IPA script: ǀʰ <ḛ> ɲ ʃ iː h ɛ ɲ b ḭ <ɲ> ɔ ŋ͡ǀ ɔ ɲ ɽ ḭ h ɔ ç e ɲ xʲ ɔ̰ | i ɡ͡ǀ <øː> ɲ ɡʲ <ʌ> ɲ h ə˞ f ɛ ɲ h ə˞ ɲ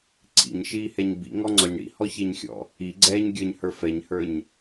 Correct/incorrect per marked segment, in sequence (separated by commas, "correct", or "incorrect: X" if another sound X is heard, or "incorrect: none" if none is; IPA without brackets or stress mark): incorrect: ḭ, incorrect: ŋ, incorrect: ɛː, incorrect: ə˞